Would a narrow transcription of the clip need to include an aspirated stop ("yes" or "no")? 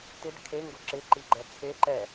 yes